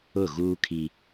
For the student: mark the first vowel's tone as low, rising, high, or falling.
falling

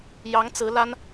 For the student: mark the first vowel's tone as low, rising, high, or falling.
rising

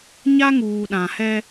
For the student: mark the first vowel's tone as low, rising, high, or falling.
high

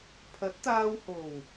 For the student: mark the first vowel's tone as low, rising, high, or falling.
rising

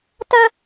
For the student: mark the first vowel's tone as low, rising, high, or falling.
high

